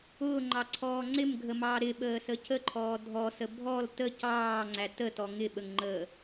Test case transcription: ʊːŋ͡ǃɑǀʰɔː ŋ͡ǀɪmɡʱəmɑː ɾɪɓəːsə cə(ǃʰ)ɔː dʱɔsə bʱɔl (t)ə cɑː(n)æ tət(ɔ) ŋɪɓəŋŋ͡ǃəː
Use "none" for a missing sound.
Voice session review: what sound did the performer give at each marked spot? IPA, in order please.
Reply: ǃʰ, t, ŋ͡ǀ, ɔ

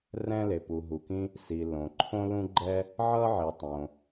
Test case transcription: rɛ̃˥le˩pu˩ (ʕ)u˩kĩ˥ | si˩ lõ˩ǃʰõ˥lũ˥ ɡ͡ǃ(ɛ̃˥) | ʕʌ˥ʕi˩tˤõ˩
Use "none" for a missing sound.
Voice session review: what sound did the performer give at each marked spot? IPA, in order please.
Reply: ɦ, ɛ˥

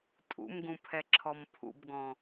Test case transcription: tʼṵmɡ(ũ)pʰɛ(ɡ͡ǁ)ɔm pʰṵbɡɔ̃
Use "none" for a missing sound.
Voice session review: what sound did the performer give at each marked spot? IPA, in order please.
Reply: ũ, ǁʰ

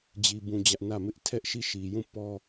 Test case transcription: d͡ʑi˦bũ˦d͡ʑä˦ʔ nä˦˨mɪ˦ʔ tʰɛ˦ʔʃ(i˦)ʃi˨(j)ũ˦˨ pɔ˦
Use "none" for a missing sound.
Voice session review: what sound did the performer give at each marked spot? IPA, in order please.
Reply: i˦˨, j

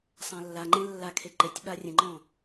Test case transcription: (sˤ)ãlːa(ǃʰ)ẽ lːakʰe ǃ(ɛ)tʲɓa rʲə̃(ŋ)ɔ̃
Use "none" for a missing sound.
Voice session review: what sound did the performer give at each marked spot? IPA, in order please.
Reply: sˤ, ŋ͡ǃ, e, ŋ͡ǃ

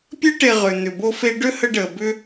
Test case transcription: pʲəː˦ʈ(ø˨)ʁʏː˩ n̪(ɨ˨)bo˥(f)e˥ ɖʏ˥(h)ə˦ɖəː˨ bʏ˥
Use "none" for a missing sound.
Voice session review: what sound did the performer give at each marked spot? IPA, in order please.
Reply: e˨, ʏ˨, f, h

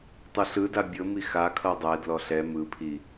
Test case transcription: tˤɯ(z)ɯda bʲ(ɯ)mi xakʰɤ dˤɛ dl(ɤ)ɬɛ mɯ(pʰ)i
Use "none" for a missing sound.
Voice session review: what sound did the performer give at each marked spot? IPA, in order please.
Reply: ɬ, ɤ, ɔ, pʰ

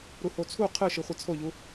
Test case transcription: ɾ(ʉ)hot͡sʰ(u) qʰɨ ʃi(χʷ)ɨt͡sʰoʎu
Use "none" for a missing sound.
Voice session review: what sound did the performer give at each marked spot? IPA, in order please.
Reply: u, u, χʷ

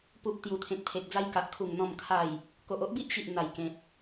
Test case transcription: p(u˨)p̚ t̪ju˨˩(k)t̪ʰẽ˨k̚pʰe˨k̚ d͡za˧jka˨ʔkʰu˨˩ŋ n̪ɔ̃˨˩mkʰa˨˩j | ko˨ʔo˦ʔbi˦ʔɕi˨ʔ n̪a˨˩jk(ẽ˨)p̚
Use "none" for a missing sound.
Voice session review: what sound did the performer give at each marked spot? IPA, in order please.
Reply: u˨, none, ẽ˨

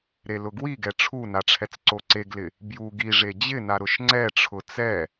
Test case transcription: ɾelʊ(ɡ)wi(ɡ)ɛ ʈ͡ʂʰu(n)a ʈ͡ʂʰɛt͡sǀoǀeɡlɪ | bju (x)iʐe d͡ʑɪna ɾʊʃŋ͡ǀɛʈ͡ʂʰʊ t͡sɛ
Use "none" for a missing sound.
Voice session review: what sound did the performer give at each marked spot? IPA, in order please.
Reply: ɡ, ɡ, n, ɡ

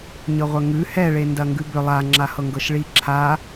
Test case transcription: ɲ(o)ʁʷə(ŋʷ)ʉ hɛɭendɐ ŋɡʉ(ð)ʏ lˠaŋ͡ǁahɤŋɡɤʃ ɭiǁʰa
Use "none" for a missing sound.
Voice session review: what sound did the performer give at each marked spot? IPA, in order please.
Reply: ɤ, ŋ, b

